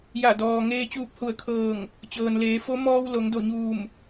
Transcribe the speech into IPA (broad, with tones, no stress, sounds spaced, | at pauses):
j a˧˩ d ɔː˩ ŋ eː˧ t͡ɕ uː˧ p̚ h u˧˩ ə̯ kʰ ɤː˧˩ ŋ | t͡ɕ ɤː˩ n l eː˩˧ f o˧˥ m ɔː˧ w l o˩˧ ŋ d o˧˩ ɲ uː˧˩ m